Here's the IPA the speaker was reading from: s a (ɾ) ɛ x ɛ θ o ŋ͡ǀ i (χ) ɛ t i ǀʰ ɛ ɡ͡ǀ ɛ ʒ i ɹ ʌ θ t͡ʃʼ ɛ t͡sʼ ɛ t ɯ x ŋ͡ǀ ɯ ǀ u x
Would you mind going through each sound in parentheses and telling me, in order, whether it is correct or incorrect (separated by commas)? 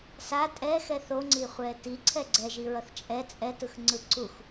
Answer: incorrect, incorrect